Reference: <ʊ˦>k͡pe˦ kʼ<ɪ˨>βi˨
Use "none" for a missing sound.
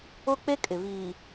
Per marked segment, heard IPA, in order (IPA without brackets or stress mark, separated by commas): ʊ˦, ɪ˨